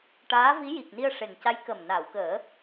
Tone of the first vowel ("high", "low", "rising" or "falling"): rising